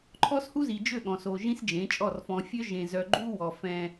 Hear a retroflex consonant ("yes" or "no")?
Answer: no